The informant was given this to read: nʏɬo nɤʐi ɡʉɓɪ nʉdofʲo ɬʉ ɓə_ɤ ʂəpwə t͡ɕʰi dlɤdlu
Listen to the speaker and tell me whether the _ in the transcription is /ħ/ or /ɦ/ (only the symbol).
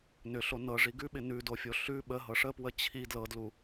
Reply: ɦ